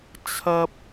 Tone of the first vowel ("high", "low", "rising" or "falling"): high